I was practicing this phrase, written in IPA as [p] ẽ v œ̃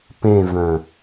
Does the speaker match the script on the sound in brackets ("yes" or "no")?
yes